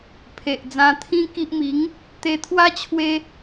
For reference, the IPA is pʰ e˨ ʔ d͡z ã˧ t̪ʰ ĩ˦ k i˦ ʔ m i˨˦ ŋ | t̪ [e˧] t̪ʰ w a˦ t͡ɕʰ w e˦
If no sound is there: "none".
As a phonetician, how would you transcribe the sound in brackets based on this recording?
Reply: e˧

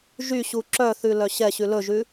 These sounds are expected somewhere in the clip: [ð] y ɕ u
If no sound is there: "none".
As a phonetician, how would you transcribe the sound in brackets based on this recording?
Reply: ʒ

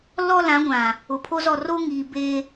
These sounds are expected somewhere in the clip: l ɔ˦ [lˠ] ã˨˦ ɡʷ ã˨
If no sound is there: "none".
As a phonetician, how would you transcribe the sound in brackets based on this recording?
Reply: l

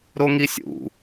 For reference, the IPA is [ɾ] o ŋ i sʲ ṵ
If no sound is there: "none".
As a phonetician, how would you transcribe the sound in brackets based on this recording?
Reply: ɾ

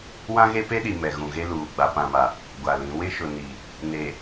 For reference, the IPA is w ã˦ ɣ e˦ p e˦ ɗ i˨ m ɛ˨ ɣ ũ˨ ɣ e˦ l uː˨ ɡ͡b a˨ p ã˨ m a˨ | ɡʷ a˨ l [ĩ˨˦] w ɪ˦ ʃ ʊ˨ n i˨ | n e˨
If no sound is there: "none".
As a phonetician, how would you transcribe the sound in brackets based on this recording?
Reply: ĩ˨˦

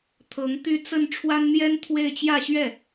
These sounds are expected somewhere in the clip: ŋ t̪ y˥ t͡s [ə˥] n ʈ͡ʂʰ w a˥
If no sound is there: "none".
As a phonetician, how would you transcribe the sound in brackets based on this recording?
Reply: ə˥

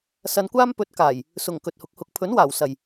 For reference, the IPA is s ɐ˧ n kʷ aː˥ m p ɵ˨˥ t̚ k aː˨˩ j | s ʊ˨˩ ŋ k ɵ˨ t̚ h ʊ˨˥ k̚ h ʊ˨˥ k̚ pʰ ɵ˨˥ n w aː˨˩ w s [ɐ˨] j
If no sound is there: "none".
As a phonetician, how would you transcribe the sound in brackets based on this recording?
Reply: ɐ˨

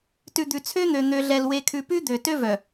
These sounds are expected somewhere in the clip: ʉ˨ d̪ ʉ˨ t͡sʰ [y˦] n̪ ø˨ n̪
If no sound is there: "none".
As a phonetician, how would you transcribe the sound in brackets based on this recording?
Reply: ø˦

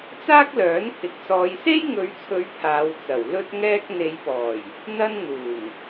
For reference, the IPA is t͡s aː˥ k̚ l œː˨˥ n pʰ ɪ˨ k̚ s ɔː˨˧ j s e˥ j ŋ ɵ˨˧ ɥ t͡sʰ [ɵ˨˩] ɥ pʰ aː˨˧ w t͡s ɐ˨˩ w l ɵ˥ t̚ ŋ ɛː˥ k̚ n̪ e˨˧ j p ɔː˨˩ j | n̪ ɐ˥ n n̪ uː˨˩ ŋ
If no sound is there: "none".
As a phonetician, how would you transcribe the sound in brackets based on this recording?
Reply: ɵ˨˧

